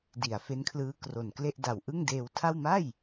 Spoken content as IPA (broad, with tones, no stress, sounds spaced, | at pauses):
d i˩˦ a̯ f e˦˥ n kʰ l ɯː˦˥ k r o˨˩ n k l e˥˩ ʔ d a˨˩ w ʔ ɯ˥˩ ŋ d eː˧ w tʰ a˥˩ w m a˥˩ j